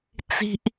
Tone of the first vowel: high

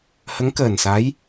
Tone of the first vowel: rising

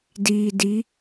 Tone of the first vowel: low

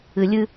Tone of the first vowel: high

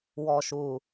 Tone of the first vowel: low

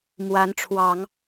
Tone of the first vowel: rising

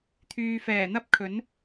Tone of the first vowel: low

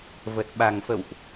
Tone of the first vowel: low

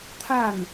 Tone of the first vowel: falling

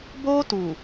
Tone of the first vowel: high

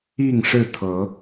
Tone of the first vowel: falling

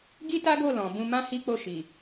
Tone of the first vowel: high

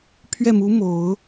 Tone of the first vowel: falling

